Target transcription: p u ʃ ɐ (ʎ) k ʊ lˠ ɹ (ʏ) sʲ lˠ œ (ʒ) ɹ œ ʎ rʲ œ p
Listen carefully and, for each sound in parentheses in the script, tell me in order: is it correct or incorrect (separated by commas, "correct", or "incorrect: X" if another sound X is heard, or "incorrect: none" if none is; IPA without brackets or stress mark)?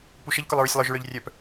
correct, correct, correct